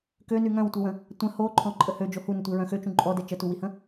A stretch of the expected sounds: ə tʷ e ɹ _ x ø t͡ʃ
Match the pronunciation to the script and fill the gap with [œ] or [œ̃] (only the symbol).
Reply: œ̃